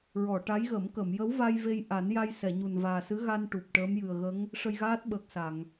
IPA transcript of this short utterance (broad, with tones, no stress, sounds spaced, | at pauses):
ɹ ɔ˨˩˨ ʈ a˧˥ j ɣ ə˨˩˦ m k ə˨˩˨ m j ə˧˥ w v a˧ j v e˧ j ʔ a˨˩˦ n j a˧ j s ɛ˨˩˨ ɲ u˨˩ n v aː˨˩ s ɨ˧˥ ɣ a˧ n ʈ u˨˩ p̚ ʈ əː˧˥ m j ɨ˨˩ ə̯ ɣ ə˧˥ ŋ | ʂ ə˧ j ɣ aː˦˥ t̚ ɓ əː˨˩ k̚ s a˨˩˨ ŋ